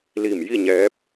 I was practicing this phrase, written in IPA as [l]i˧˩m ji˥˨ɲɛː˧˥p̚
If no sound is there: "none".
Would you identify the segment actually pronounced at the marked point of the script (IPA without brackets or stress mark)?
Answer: l